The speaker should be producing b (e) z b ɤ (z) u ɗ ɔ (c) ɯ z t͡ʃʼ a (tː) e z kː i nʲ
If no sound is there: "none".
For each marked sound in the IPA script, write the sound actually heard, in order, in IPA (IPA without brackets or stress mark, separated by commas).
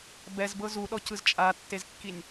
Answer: ɛ, z, c, tː